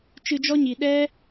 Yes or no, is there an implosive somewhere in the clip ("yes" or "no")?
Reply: yes